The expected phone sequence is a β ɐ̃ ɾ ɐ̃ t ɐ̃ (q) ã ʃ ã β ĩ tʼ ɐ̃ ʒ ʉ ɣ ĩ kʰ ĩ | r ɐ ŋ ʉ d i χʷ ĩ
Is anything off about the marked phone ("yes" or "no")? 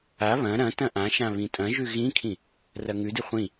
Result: yes